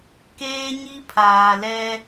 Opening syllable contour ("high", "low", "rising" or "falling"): high